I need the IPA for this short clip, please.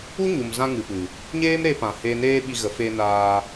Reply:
u˦ ɲ u˨ m z ã˧ ŋ ɨ˨ p ɨ˨ | ɲ eː˦ m ɾ e˧ p ã˨ h eː˨ n eː˧ ɓ i˨ ɣ ə˨ f e˧ n aː˧

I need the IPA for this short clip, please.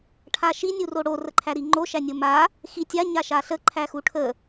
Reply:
ʈʰ a ʃ i nʲ u r o ɽ o r ə ǃʰ æ ɾ i ŋ͡ǃ o ʃ æ nʲ o m a | x i tʲ a ɲ a ʃ a ɬ ə ǃʰ æ x u ʈʰ ə

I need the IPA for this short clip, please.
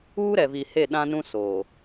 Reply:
uː˦ ɾ ɛ˨ v i˨ h e˦˨ ɗ ã˦ n ũ˦ s oː˨

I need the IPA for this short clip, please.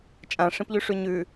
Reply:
t͡ʃʼ ã ʂ ĩ p ʎ ʉ ʂ ʉ ɲ ʉ

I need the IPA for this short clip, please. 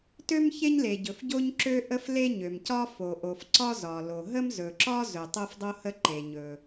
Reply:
t ø˥ m ç e˥ ɲ l e˩ ɟ ɵ˩ f ɟ o˥ ɲ ǁ ø˥ ʔ ə˥ f l e˥ ɲ ø˩ m c ɒ˥ f o˩ ʔ o˩ f ǀ ɒ˥ z ɒ˩ l o˩ ɦ ə˥ m z ɵ˩ ǁ ɒ˥ z ɵ˩ tˤ o˥ f dˤ o˥ h ə˥ ǃ e˩ ɲ ɵ˩

